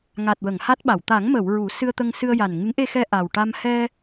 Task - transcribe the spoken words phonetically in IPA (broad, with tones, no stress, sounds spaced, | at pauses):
ŋ a˨˩ t̚ w ə˨˩˨ ŋ h a˦˥ t̚ ɓ a˨˩˨ w t̪ a˨˩˦ ŋ m ə˨˩˨ w ɹ u˨˩˦ s ɨ˧ ə̯ t̪ ə˧ ŋ s ɨ˧ ə̯ j a˨˩ n ŋ ɨ˧˥ ŋ ʔ e˧ x ɛ˧ ʔ a˨˩ w ʈ a˧ m h ɛ˧